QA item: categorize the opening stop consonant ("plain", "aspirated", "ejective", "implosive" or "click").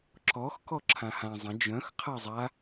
click